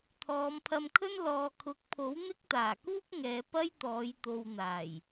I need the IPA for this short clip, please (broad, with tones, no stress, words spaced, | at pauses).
t̪ʰɔː˨˧mpʰɐ˧mkʰɵ˥n lɔː˨kʰʊ˨˥k̚pʰo˨˥w n̪ɪ˥k̚t̪aː˨˩kuː˥k̚ŋɛː˨˧ pɐ˥jt̪ɔː˨˧j t̪o˨wn̪aː˨˩j